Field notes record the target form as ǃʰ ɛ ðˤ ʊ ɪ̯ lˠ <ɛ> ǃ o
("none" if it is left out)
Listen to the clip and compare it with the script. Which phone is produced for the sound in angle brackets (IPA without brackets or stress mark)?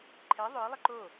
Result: ɪ